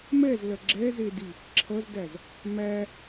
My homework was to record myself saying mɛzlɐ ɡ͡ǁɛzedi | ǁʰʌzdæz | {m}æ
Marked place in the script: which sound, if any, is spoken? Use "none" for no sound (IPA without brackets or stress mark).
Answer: m